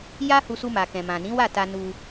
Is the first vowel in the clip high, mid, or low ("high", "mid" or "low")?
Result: low